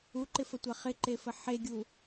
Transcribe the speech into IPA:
u ǃ ɪ f ə tʷ a χ ɪ ǃ e f ə ħ e ɡʲ u

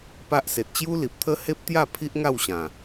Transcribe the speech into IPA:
p a˦ ʔ s e˨ t̚ t͡ɕ j u˦ l i˨ p̚ t̪ʰ ə˦ h e˦ p̚ t̪ j a˥˧ pʰ i˦ ʔ ŋ a˥˧ w ɕ ã˨˩

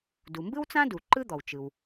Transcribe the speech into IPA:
d u˩ m b ɯ˥ w t͡s ã˥ d u˩ ǃ ɯ˥ d̪ ɔ˩ w t͡ʃ ɯ˩ w

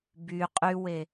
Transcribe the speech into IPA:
b y qʼ y w e

